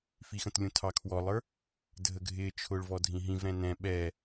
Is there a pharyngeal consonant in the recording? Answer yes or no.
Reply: no